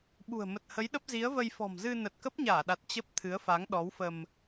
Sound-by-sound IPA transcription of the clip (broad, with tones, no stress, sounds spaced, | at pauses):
ɓ ṳ˨˩ ə̯ m ə˨˩ t̚ h ə˨˦ j ɗ ə˦˥ p̚ z i˨˦ ə̯ v ə˧ j f ɔ̤˨˩ m z ɨ˧ n ə˨˩ t̚ k ə˦˥ p̚ ɲ aː˧˩ ɗ a˨˩ t̚ t͡ɕ ə˦˥ p̚ t̪ʰ ɨ˨˦ ə̯ f a˨˦ ŋ ɗ ɔ˨˦ w f ə˧ m